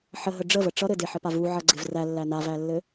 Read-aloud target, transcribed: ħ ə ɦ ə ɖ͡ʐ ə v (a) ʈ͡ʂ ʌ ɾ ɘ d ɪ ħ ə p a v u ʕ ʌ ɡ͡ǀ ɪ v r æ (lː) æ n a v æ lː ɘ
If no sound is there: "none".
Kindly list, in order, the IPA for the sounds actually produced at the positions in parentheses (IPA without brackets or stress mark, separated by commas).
ə, lː